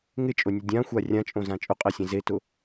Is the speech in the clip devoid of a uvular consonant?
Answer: no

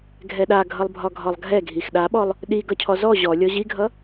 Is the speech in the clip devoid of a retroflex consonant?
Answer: yes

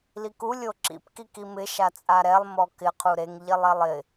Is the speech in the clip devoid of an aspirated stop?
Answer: no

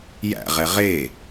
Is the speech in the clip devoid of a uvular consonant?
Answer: no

